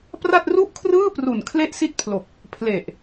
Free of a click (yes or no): yes